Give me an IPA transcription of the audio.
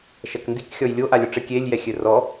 ʃ ɐ k n d i k xʲ ɔ j lʲ o ʔ a lʲ ɔ ʈ͡ʂ ɘ kʲ e lʲ j ɛ xʲ ɘ r ɔ

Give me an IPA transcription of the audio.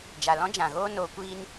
d͡ʒ a˨ l ɔ̃˦ d͡ʒ ã˨ ɣ oː˦ n oː˧ kʷ iː˦ n

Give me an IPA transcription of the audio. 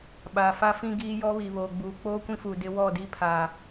ɓ aː˨ f a˦ f ĩ˦ ɡ iː˦ j ɔ˦ β i˨ β oː˨ ɡ͡b uː˨ k͡p oː˦ kʷ ĩ˦ f uː˨ d ɪ˦ w ɔ˦˨ d i˦ pʰ a˨

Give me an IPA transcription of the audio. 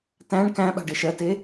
t æ̃ ɳ k æ̃ ɓ a̤ ɖ e ʃ ɜ t e

